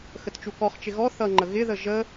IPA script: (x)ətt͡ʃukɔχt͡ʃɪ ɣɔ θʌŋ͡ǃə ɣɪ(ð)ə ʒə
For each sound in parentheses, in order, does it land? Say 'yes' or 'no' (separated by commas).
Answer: yes, yes